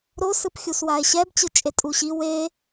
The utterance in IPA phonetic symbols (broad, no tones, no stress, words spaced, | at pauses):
ɾo sɯpxʲuswae̯ɕɛb t͡ɕɯt͡ʃʼetʼuɕi we